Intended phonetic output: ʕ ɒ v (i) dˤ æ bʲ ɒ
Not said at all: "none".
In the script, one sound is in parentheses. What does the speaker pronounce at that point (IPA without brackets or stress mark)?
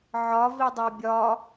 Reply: i